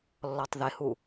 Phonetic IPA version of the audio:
lː ɔ tˤ ð ɪ h u

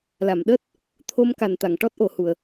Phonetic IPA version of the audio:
l a˨˩˨ m ɗ əː˦˥ t̚ | t̪ʰ o˧ m k a˨˩ n t̪ a˨˩˨ ŋ ʈ ɔ˦˥ t̚ ʔ o˨˩˨ h u˨˩˨ ə̯

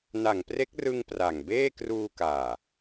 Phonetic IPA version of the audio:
n a˨˩ ŋ p r e˦˥ k̚ r ɯ˧ ŋ p r a˨˩ ŋ b eː˥˩ k r uː˧ k aː˨˩

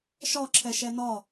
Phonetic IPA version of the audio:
ʃ ɒ ǁʰ ɛ ʃ ɛ n ɒ

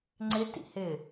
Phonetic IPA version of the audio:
ŋ͡ǀ ɪ t ḭ h ɪ

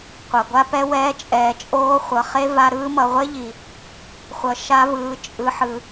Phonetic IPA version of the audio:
qʷ a˨ ɡʷ a˦ p ɛ˦ w ɛː˧ t͡ʃʼ ɛː˨ t͡ʃʼ oː˧ χʷ ʌ˨ χ e˦ v a˧ ɾ ɯː˧ m ʌ˨ ʁʷ e˦ ʎ i˨ | χʷ ʌ˨ ʃ a˧ v ɯː˨ t͡ʃʼ ɯ˨ ħ ɯ˨

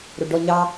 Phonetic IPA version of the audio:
ɾ o ɖ ɔ ɲ ɑ

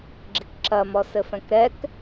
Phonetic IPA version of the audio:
ɡ͡ǁ i k ǁ ɐ m ɔ s ɘ f ɛ̃ k ɾ ɛ k

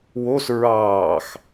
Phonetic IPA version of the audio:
w o s ɹ ɑː x

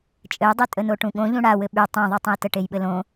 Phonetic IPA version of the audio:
t͡ʃʼ ɘ j dˤ y tʼ ə n o ʈ ũ ɠ õ ʎ ũ ɽ a w ɘ ɓ y tˤ õ ðˤ y tˤ ə̃ j t ə ʈ e j ɓ ɘ l õ

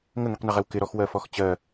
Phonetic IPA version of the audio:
ŋ ə ŋ i q n ɪ ʁ ɛ w k ɪ ɾ ɔ x w ɜ f ɔ x t͡ɕ ɜ

